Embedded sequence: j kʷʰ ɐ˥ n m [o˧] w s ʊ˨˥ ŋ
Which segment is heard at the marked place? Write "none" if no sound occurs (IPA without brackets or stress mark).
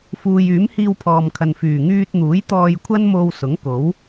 o˧